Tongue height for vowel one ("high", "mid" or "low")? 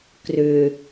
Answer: high